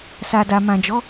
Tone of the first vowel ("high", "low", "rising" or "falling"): low